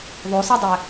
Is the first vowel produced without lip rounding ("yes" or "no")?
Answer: no